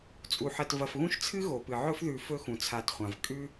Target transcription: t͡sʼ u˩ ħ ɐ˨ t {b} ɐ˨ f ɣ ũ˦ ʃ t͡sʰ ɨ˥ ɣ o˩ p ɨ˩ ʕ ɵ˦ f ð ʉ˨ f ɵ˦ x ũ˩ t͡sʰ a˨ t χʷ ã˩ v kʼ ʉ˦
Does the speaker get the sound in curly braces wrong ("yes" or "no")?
yes